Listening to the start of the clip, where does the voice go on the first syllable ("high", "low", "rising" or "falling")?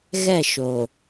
falling